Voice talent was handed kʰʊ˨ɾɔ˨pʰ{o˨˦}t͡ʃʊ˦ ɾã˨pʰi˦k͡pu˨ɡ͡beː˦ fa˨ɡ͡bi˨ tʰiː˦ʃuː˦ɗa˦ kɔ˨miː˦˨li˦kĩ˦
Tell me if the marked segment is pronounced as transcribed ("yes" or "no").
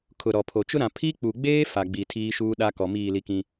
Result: no